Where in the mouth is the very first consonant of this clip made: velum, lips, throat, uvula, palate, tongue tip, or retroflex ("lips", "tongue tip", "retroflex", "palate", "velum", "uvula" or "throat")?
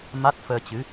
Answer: lips